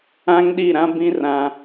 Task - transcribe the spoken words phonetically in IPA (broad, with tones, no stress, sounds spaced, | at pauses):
ã˦ ŋ ɗ i˦˨ ɾ ã˦ b ĩ˦ r ã˦